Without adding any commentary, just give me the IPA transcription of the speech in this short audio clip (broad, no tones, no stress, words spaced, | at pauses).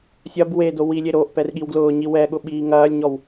sʲɐb we dowilʲe ɾoʔpɛr ɠiwɡlʊːɲi wɛɠʊ ɓiːŋɐːlʲɲɔw